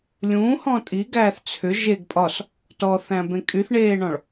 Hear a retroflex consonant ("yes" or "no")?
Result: yes